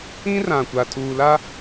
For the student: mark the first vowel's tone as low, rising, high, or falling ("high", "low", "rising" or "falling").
high